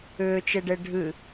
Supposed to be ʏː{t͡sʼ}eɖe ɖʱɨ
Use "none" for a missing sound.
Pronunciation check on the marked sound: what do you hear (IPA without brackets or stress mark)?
t͡ʃ